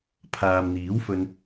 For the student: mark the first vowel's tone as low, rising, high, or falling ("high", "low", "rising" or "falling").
low